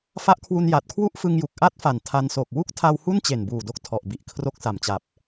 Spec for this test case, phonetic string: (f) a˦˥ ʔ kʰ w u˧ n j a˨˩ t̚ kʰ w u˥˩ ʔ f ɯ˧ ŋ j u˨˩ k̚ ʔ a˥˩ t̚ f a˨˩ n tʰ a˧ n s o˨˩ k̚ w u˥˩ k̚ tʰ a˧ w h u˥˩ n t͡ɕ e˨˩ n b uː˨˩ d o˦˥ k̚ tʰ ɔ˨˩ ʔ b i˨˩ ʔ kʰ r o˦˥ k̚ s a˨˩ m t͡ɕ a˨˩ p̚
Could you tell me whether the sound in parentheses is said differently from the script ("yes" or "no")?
no